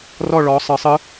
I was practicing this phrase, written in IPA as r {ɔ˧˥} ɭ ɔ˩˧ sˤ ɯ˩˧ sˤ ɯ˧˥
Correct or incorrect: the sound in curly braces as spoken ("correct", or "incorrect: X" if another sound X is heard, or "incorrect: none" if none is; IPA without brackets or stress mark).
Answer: incorrect: ɔ˦˨